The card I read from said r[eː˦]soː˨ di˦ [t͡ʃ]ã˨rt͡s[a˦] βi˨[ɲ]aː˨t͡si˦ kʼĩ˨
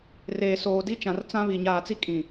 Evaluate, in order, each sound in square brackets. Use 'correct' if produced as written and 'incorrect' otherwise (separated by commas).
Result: incorrect, correct, incorrect, correct